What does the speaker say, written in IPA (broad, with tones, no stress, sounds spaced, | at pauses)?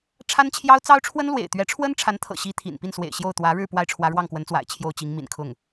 ʈ͡ʂʰ a˥ n t͡ɕʰ j ɑ˥ ʊ̯ t͡s ɑ˥ ʊ̯ ʈ͡ʂʰ w ə˥ n l w ḛ˨˩ ɪ̯ t̪ ɥ ɛ˧˥ ʈ͡ʂʰ w ə˥ n ʈ͡ʂʰ a˧˥ n t̪ʰ ɤ̰˨˩ ɕ i˥ t̪ʰ ḭ˨˩ n p i˥˩ n s w ḛ˨˩ ɪ̯ ɕ j o˥˩ ʊ̯ t̪ w ä˧˥ ɻ ɻ̩˥˧ p w a˥˩ ɪ̯ ʈ͡ʂʰ w ä˧˥ ɻ w ɑ˥˩ ŋ k w ə˧˥ n t͡s w a̰˨˩ ɪ̯ t͡ɕʰ j o˥˩ ʊ̯ t͡ɕ i˧˥ ŋ m ḭ˨˩ n kʰ ʊ˥˩ ŋ